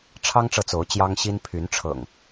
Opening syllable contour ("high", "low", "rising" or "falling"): high